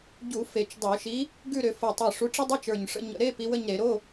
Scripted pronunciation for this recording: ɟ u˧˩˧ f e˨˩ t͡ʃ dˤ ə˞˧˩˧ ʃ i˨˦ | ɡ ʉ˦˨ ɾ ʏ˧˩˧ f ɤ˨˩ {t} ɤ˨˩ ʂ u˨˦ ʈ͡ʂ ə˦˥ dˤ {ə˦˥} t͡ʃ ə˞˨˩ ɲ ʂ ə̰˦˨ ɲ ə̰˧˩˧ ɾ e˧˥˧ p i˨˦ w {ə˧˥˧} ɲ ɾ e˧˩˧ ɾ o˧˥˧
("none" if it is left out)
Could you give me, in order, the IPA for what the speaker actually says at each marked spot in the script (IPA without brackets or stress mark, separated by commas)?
tˤ, ə˧˥˧, ə˦˨